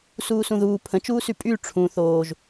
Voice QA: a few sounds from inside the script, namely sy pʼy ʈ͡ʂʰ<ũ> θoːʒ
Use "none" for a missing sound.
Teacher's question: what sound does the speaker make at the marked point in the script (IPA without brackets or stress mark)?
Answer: ũ